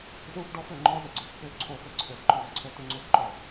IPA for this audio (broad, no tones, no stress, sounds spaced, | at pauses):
z u f ɖ ɔ f ø ŋ͡ǃ ɔ z ə ɡ͡ǀ ø f x ø ǀʰ o f ɘ ǀʰ ø f ǃ œ ðˤ ə ǀʰ o t u ŋ͡ǀ ø f ǃ ɔ